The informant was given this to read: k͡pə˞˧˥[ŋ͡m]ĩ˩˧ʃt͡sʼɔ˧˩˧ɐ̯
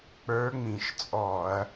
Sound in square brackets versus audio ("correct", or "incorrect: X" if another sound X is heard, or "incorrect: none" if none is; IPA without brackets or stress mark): correct